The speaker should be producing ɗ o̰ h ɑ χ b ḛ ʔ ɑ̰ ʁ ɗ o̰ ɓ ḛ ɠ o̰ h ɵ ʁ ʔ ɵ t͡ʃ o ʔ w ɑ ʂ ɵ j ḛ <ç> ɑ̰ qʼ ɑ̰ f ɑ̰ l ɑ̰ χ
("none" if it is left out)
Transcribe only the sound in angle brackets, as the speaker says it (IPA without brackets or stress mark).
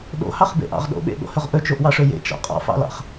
t͡ʃ